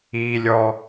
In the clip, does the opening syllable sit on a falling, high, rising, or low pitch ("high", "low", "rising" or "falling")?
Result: low